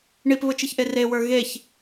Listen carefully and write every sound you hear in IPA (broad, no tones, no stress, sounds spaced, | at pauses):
ɳ i p β ʊ t͡ʃ i ç ʔ e r e w ə˞ ɣ e ç